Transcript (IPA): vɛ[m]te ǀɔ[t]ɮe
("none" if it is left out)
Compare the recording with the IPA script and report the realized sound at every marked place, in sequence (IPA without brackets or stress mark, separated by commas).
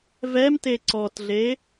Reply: m, t